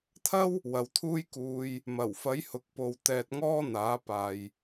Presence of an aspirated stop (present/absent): present